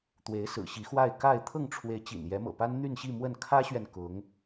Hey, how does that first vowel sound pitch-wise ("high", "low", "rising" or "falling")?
rising